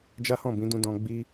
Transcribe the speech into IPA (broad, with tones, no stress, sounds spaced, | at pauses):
d͡ʒ a˦ h ɔ̃˦˨ b ĩ˨˦ d ũ˦ d ɔ̃˧ ɡ͡b i˦